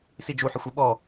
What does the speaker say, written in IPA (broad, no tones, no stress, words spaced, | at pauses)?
sid͡ʒu ħɪxʷiɓɔ